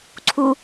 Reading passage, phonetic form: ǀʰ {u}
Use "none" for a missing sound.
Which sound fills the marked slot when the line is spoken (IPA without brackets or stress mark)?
u